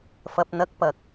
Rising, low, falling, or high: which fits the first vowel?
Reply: low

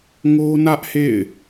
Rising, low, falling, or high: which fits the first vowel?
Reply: high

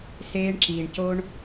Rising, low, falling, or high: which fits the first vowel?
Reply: high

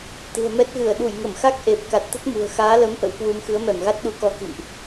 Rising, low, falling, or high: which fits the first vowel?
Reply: low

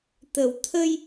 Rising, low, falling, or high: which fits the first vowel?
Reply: low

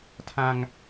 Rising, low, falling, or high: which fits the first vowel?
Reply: high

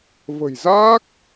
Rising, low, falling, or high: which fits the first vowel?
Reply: low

